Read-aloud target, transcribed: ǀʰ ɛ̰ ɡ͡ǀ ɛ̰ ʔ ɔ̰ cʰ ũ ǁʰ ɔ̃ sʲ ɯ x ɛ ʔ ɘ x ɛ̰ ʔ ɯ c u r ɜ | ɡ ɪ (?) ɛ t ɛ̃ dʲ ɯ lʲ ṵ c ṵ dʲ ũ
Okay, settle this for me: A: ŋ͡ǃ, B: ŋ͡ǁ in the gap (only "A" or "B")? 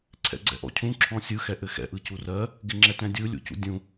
B